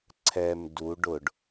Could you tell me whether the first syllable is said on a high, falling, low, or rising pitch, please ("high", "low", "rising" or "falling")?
low